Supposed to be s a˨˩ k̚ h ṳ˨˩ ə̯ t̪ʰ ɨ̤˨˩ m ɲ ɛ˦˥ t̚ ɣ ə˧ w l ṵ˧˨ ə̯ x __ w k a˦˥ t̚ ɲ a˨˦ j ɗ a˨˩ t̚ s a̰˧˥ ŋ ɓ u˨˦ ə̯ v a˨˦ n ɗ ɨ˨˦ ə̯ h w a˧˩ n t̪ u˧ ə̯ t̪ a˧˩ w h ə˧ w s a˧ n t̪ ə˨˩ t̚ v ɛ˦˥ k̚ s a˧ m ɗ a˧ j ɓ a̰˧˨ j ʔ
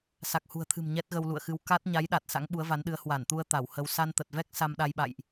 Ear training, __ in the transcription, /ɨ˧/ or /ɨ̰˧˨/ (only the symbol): ɨ˧